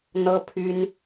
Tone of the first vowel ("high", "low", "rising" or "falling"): high